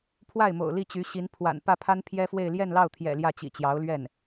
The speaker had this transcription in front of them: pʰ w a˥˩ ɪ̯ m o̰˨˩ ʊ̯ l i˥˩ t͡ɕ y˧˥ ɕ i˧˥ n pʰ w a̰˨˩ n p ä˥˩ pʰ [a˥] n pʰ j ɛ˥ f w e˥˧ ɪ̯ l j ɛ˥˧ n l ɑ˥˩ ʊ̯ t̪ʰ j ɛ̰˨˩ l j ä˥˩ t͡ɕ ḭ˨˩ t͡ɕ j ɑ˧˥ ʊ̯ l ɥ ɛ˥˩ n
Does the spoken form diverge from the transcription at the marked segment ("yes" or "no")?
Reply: no